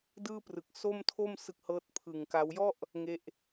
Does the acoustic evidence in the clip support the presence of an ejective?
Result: no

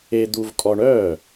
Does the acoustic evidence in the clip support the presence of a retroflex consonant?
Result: yes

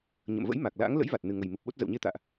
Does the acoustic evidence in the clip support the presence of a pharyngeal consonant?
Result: no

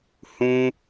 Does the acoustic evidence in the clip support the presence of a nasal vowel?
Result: yes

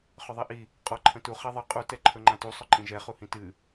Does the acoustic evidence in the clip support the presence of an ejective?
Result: yes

